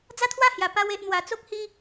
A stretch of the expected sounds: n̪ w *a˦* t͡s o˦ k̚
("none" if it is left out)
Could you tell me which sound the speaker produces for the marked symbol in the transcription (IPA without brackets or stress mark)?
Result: a˧